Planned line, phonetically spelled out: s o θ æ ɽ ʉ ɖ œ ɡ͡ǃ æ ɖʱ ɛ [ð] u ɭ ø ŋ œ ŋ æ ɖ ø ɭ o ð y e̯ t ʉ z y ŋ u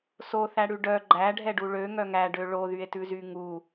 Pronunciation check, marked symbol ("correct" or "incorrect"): incorrect